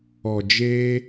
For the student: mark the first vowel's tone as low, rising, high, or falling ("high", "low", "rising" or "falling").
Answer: low